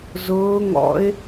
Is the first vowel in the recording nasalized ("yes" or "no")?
no